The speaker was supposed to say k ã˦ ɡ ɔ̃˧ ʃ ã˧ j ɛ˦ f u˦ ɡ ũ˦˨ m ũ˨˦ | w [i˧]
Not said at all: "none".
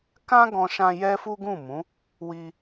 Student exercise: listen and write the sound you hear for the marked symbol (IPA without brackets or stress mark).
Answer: i˧